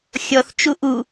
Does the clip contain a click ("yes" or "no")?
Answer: no